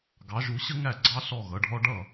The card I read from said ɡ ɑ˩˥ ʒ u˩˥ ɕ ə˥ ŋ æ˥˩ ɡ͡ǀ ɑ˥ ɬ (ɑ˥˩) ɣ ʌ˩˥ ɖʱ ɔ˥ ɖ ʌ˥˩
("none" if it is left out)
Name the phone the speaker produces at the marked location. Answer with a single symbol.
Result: ɔ˥˩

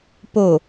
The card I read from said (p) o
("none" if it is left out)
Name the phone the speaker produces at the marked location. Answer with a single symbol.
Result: p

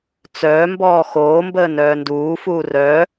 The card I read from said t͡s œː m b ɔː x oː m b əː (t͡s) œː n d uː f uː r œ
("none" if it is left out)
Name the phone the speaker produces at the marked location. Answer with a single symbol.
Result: n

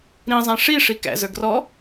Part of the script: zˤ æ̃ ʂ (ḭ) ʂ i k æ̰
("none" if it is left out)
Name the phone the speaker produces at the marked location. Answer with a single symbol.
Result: i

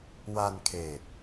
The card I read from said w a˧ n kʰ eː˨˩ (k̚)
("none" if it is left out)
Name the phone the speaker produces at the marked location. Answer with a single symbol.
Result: t̚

